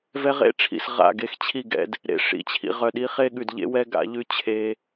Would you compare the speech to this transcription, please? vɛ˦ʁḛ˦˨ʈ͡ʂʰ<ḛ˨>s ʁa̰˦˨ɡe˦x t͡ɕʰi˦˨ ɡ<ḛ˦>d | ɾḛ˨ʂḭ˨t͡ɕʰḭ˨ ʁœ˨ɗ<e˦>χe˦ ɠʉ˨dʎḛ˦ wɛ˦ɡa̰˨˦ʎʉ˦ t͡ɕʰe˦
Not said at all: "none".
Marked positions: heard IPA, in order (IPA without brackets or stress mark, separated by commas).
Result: ḭ˨, ɛ̰˦, i˦